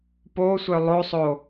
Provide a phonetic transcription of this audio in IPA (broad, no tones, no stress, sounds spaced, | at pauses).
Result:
p o sʷ œ lˠ o sˤ o